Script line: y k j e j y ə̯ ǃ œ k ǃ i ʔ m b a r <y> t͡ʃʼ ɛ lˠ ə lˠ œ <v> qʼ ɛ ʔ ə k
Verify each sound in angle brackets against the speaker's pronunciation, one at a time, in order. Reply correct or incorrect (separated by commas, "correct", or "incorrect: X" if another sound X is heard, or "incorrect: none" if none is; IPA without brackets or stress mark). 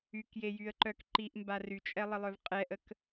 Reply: correct, correct